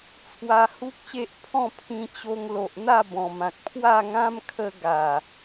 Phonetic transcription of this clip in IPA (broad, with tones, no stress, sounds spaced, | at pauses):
t͡sʰ w a˧ h u˦ k̚ ɕ e˦ ʔ pʰ ɔ̃˥˧ pʰ ĩ˧ t͡ɕ o˧ ŋ l o˨ ʔ n̪ a˥˧ b ɔ̃˨˩ m ã˨ k̚ pʰ w a˥˧ ŋ ã˦ m kʰ ə˧ ɡ a˨˩